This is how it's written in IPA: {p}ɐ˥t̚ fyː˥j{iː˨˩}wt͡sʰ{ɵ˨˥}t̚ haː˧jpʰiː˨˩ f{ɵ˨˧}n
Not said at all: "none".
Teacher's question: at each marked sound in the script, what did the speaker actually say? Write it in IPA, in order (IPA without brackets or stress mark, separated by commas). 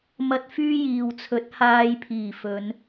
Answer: m, iː˨, ɵ˨˥, ɵ˨˧